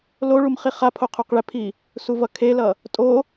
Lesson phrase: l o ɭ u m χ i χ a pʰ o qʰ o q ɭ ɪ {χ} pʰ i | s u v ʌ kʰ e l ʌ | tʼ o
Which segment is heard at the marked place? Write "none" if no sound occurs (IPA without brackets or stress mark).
none